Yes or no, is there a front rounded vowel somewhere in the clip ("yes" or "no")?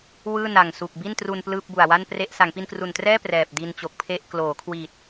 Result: no